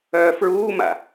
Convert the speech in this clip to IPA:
œː f ɹ uː m a̰

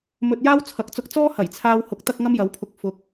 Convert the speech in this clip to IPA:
m ɵ˧ t̚ j aː˥ w t͡sʰ ɐ˨˥ k̚ t͡s ʊ˧ k̚ t͡s ɔː˥ h ɐ˨˩ j t͡sʰ aː˧ w h ʊ˨˥ k̚ t̪ ɐ˥ k̚ ŋ ɐ˥ m j ɐ˨˥ w pʰ ʊ˧ k̚ f ʊ˨˥ k̚

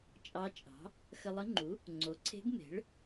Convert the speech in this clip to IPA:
t͡ʃʼ ɑ˧˥ t͡ʃʼ ɑ̤˩˥ | x ə˧ lˠ ə˧˥ ŋ͡ǃ u˩˥ | ŋ͡ǀ o˩˥ ǀʰ e̤˧˥ ɡ m e̤˩˥ ɭ

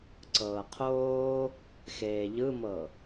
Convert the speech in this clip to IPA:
ǀ ɤː qʰ oː | x eː ʎ ɯ m ɤ

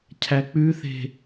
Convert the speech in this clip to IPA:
cʰ æ k͡p ʉ θ e̤

